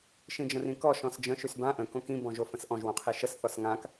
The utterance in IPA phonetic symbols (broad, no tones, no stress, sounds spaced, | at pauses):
ʃ ĩ d͡ʒ ə̃ r ĩ k ɔ ʃ ɔ̃ s d͡ʒ ə̃ ʃ y s b ã ʔ ə̃ k õ k ĩ b ɔ̃ ʒ o f ə̃ s ʔ ɔ̃ ʒ w õ qʰ i ʃ ə s θ ɔ s ŋ ã k